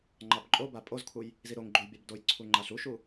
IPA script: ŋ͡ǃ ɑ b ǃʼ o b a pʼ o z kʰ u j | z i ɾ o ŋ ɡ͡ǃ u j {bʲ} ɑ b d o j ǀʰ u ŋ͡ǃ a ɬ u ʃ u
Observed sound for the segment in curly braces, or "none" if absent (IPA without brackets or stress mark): bʲ